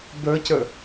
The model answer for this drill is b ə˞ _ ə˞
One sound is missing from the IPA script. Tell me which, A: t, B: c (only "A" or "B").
B